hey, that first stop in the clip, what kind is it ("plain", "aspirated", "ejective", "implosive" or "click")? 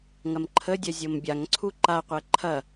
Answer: click